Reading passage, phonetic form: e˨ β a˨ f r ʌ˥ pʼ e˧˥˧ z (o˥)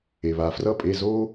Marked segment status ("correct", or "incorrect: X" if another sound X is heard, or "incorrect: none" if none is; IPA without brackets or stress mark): correct